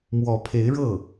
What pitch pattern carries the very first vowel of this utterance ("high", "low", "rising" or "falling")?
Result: rising